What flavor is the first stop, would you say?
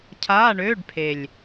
aspirated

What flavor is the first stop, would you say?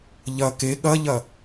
plain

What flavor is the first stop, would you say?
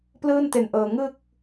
plain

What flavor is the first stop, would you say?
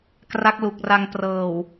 plain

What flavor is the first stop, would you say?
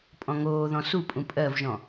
ejective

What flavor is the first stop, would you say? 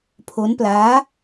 aspirated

